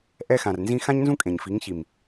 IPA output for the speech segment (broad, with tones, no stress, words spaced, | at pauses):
ʔɛ˧xã˨rnzĩ˧ xã˦ɲnzũ˦ kʼẽ˨ɲfi˨˦ŋ çi˨m